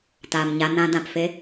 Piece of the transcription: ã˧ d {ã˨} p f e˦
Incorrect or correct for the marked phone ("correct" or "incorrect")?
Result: correct